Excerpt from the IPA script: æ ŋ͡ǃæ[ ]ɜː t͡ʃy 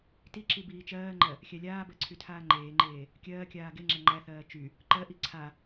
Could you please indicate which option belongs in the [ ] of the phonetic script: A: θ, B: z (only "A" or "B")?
A